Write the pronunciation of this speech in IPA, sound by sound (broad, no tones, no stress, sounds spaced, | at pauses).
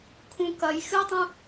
kʰ ũ k ɐ j x ɨ tˤ ũ